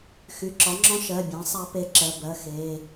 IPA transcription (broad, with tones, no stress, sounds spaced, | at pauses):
x y˩˧˩ ǁ ɒ˩˥ ŋ͡ǁ ɔ̃˦˥ ʃ ɜ˩˧˩ bʲ ã˩˥ sˤ a˦˥ p e˦˥ ǁ ɜ˩˧˩ b ɜ˩˧˩ x e˩˧˩